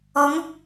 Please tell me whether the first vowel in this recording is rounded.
yes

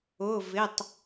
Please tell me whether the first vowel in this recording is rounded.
yes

